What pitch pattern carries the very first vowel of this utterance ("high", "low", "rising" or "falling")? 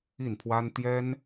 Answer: falling